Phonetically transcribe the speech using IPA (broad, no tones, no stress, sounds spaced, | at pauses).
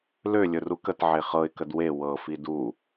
l ø lʲ ɵ r u k ə t ʕ e χ ɤ ɪ̯ k ə d w e w ɤ f i d u